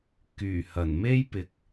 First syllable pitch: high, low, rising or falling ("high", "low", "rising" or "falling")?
low